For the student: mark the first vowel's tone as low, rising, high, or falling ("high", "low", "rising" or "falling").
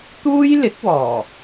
high